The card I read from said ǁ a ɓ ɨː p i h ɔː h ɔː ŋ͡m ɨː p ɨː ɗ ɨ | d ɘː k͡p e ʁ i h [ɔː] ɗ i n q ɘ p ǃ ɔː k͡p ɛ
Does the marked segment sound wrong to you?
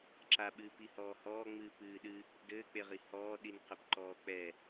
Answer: no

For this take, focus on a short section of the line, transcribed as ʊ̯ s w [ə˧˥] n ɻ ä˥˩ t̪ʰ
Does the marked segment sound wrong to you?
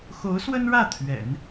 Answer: yes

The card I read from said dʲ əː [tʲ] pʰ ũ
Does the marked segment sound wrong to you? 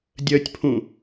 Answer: no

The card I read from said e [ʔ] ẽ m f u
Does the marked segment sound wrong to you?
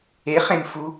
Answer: yes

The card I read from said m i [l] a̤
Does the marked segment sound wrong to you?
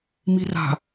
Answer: yes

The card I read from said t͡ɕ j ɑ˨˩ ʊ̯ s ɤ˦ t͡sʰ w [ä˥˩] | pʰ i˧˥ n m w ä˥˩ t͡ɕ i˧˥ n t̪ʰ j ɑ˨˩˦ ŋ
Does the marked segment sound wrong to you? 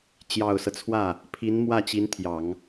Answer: no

